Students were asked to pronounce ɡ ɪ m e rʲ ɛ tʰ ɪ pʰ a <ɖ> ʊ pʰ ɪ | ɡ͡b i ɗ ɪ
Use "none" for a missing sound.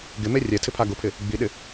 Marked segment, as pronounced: ɡ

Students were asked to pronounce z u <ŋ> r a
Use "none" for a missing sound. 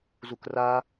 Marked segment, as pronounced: k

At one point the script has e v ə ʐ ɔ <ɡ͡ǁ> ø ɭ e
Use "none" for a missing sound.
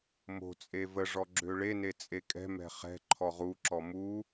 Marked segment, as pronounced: ɡ͡ǁ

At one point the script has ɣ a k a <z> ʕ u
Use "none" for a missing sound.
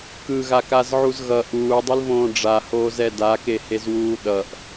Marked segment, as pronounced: z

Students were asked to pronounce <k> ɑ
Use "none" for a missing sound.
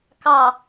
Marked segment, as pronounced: k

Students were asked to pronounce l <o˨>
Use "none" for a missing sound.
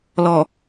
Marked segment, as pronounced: ɔ˨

